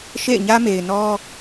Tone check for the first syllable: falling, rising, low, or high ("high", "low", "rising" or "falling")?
falling